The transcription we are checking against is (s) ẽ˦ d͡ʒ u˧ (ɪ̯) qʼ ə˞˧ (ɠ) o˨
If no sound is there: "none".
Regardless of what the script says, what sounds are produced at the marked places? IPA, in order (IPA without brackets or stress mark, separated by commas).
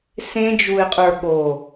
s, ɪ̯, ɠ